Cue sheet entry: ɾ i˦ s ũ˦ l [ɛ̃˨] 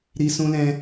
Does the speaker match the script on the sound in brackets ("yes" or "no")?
no